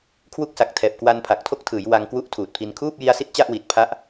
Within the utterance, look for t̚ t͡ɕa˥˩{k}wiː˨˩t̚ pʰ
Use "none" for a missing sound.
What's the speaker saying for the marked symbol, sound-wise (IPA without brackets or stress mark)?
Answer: ʔ